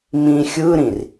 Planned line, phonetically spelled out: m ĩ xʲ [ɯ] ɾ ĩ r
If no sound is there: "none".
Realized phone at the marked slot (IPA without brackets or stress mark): ɯ